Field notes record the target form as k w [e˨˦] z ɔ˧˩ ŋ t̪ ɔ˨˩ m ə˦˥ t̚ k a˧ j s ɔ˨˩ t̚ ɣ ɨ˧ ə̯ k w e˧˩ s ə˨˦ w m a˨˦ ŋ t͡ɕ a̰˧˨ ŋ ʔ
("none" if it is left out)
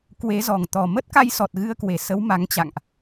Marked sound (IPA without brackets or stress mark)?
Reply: e˨˦